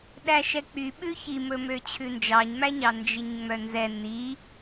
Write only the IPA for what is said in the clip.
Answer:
ɗ æ ʃ ɛ k͡p y ɓ ʉ ç i m ɵ m ø t͡ɕʰ ʉ n d͡ʒ ɑ ɲ m æ ɲ ɑ n d͡ʒ i ɲ ŋ͡m œ n z ɛ n i

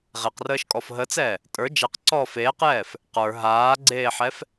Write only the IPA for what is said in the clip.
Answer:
ʁ e q r əː ʃ kʼ ɔ f ɦ ə t͡s ɛː | tʼ ə˞ d͡ʒ ɛ q ǀ ɔː f eː q j ɛː f | q ə˞ ɦ aː ɡ͡ǀ eː ħ ɛ f

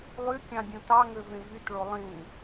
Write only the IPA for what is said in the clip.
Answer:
lˠ y kʲ ɑ̃ dʲ õ t ɑ ŋ ø v ẽ v y t ɭ o lˠ ĩ

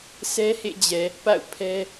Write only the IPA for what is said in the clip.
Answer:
s ɛ˦ h ḛ˦˨ d͡ʑ ɛ˨ | p a̰˦˨ ʊ̯ pʰ ɛ˦

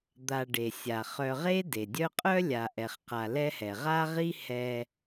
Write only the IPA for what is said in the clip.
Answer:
d̪ a˨ ɖ e˩ sʲ a˩ χ œ˨ ʁ e˦ d e˩ dʲ œ˦ qʼ œ˥ lʲ a˨ ʔ ɛ˨ χ q a˨ l ɛ˦ h ɛ˩ ʁ a˥ ʁ i˦ h ɛ˨

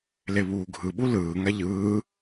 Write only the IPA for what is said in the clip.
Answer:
l e β uː ɡʱ ɯ ɓ u l ɯː ŋ a ʎ ɯː

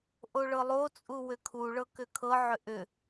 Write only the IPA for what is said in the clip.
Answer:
ʔ o ɭ ɤ lˠ o t͡sʼ u w ʏ kʰ u ɭ ɤ k ʏ kʰ ɤ ʕ ʏ ʔ ʏ

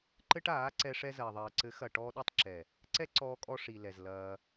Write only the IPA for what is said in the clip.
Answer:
ǃ ɘ˦ ʈ aː˨˦ ǀ ɛ˧ ʂ ɛ˧ z ɐː˨ ðˤ ɐː˨ ǀ ɘ˨˦ x ɐ˨ ʈ ɔː˧ ɗ u˦˨ tˤ ǁ ɛ˨ | ǀ ɛ˦ ǀ ɔː˧ kʼ ɔ˧ ʂ i˨ l ɛ˨ z l ɐː˧

